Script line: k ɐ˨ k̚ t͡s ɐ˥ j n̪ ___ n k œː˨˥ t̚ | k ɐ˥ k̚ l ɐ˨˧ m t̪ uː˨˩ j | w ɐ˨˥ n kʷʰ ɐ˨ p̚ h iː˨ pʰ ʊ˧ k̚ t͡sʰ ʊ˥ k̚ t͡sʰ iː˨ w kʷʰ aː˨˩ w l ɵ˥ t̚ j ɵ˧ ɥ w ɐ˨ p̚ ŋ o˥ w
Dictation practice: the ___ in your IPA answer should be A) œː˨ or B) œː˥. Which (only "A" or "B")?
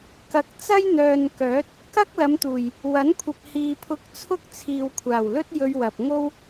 A